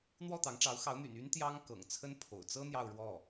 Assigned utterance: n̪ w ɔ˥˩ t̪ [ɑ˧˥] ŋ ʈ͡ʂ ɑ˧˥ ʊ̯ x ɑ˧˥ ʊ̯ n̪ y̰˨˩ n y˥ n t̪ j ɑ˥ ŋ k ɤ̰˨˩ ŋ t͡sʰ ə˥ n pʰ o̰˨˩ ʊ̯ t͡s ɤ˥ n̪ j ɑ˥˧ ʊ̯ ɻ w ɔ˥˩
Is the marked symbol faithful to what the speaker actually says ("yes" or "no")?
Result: yes